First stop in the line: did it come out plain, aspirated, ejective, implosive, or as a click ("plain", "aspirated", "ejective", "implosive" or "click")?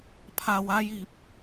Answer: aspirated